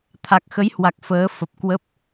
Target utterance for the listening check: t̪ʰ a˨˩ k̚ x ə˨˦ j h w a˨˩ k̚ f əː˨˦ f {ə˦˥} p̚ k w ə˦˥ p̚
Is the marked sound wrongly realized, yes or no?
yes